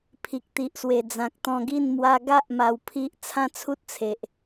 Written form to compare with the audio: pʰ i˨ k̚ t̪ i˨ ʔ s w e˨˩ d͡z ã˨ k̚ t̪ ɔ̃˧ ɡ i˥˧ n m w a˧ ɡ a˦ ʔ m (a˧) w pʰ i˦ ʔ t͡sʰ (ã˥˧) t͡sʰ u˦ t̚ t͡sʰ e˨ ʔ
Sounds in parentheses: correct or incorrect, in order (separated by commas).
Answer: correct, correct